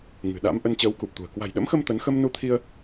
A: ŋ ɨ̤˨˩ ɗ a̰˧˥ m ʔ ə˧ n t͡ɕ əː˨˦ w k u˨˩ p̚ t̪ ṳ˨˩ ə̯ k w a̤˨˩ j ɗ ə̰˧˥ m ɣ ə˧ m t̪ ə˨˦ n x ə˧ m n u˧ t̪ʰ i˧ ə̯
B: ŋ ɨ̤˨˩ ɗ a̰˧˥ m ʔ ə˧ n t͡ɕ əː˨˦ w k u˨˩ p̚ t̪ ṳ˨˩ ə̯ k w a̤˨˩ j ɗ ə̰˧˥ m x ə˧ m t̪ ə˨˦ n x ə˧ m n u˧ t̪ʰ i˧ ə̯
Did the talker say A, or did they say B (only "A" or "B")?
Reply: B